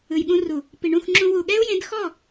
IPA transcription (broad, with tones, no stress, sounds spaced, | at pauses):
ɯ˨ j ɠ ũ˧ r u˨ | p i˨ ɳ ũ˦˨ x ŋ͡ǁ ũ˧ w u˨ ɠ ɛ˦ u̯ j ẽ˨˦ d x ɔ˦˨